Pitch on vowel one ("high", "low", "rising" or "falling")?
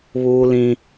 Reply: high